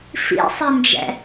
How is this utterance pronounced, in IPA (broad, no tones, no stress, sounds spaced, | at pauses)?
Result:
f ḭ sˤ i n d͡ʒ ɛ̰